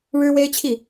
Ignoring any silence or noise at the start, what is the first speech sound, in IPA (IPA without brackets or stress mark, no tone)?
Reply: ɻ